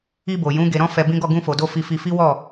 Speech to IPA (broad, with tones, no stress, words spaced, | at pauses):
i˧bo˨ jũ˨˦ ɡe˧ɾɔ̃˦fɛ˧ bĩ˦ɡɔ˦˨ ɡũ˧fo˨do˧ fi˧ fi˧fi˦wɔ˦˨